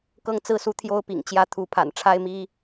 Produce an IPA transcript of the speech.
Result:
k ɤ˥˨ ŋ t͡s ɹ̩˥˨ s u˦ t̪ʰ j o˦ ʊ̯ p ḭ˨˩ ŋ t͡ɕ j ä˦ t̪ʰ u˨˦ pʰ a̰˨˩ n ʈ͡ʂʰ a˦ ɪ̯ m i˦

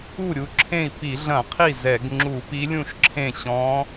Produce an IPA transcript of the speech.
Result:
u˥˩ ɾʲ u˧˥ ǁʰ ẽ˥˩ i̯ p i˧˩˧ ɮ ɐ̃˧˩˧ qʰ i˥˩ z ɛ˧˩˧ ɡ ŋ͡ǁ u˧˩˧ p i˧˥ lʲ ũ˥˩ ʃ ǁʰ ẽ˥˩ ɕ ɔ̃˧˥

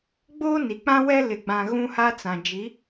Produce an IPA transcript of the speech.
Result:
ɡ͡b oː˦ n i˨ k͡p ã˦ w ɛ˦ l ɪ˨ ɡ͡b ã˨ ɣ ũ˦ h a˦ t͡s ã˨ d͡ʒ i˨˦

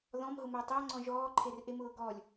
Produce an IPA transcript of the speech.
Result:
ð ɔ̃ m ɦ ʊ m əː tˤ əː ŋ͡ǀ ɔ̃ ʒ ɔː ǃʰ e r ʔ e m ʊː ɡ ɔ lʲ

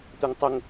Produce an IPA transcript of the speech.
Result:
tʷ ɛ ŋ tˤ ə ŋ

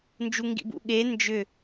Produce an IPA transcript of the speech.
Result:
n d͡ʒ u ŋ ɡ ḭ b ṵ ɠ e n d͡ʒ ʏ

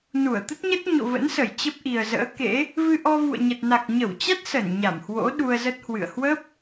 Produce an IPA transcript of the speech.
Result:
n u˧˩ ə̯ t̪ ə˦˥ t̚ ɲ ə˦˥ t̚ ɲ o̰˧˨ v ə̰˧˥ n s ə˧˩ j t͡ɕ ə˦˥ p̚ ʔ i˨˩ ə̯ z ə̰ː˧˥ k ḛ˧˥ | v ɨ˧ ʔ ɔ˧ v ṵ˧˨ ə̯ ɲ ə˨˩ t̚ n a˨˩ k̚ ɲ ə˧˩ w t͡ɕ a˦˥ t̚ s ə˧˩ n ɲ a˧˩ m h w o̰˧˥ ɗ u˧ ə̯ z ə˦˥ t̚ h w ɨ̰˧˨ ə̯ h w ə˦˥ p̚

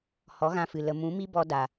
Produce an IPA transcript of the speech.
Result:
h ɔ˨˦ ɣ ã˧ f ɨ˨ l ə˨ m ũ˨˦ m i˦ b ɔ˧ d a˨

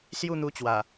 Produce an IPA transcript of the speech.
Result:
s j u˥˧ n̪ u˧ t͡ɕ w a˨˩

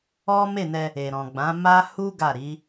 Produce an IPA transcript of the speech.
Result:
ɔ˦ m e˦˨ n ɛ˧ | e˨ ɾ ɔ̃˨ ɡ͡b ã˨˦ m a˦ h u˦ ɡ a˦˨ ɾ i˨˦

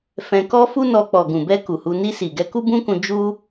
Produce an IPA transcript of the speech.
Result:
f ɛ̃˧ k ɔ˦ f u˦ n ɔ˧ k͡p ɔ˨ ɡ ũ˨ b ɛ˧ k u˨ h u˧ n i˧ s i˨ ɡ ɛ˧ k u˦ b ũ˦ k ũ˧ d͡ʒ u˦

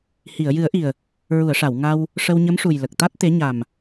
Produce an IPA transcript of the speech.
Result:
h i˨˩˨ ə̯ j ɨ˨˩˦ ə̯ ʔ i˨˩ ə̯ | ɹ u˨˩˨ ə̯ ʂ a˨˩˨ w ŋ a˧ w | ʂ ə˧ w ɲ ə˧˥ m ʂ u˨˩ j l ə˨˩ k̚ t̪ a˦˥ t̚ t̪ e˧˥ ɲ a˨˩ m

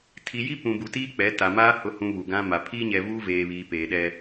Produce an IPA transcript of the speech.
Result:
tʰ i˨ j i˦ p ũ˨ b u˨ t iː˦ k͡p ɛ˨˦ t a˨ m aː˦ h ʊ˨ h ũ˨ β u˨ ɡ ã˦ m a˨ pʰ iː˦ ɲ ɛ˨ v uː˦ v eː˨ β iː˨ p eː˨ ɗ ɛ˦

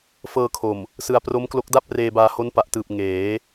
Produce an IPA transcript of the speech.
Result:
f ɤː˧ kʰ o˨˩ m | s ɯ˧ a̯ p r o˦˥ m k l o˦˥ k̚ d a˥˩ p̚ r eː˧ b aː˧ h o˦˥ n p a˨˩ ʔ t ɯː˨˩ p̚ ŋ eː˩˦

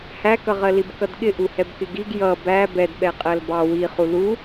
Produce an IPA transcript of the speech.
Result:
h æ k ʌ ʁ ɜ l i b k ʌ d ɠ ɪ ʔ u h ɛ b k ɪ ɡ i ɡ j ʌ b æ b ɛ d ɓ ɛ qʼ ɜ l b ɑ w i χ u l u

